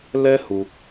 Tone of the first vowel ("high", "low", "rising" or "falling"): high